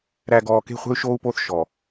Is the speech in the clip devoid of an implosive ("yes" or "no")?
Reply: yes